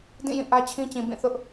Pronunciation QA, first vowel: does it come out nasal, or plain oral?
nasal